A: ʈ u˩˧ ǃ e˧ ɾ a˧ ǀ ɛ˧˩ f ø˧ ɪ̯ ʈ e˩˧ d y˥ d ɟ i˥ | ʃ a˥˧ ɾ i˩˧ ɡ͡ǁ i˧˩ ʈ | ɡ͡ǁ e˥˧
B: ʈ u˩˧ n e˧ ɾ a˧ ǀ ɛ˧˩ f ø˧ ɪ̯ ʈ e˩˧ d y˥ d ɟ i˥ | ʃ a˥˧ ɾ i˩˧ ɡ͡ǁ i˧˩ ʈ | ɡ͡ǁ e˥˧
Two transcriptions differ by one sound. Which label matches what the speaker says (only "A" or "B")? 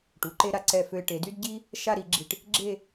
A